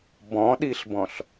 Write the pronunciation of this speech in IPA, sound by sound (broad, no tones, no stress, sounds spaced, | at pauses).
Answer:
b ɔ̃ ɗ i ɬ b ɔ̃ ɬ